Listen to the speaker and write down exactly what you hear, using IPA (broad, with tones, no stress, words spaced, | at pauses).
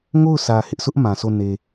ŋo˦˨ʊ̯sä˨ hɪ˦ʔsʊ˦ʔ mã˨so˦˨ ne˨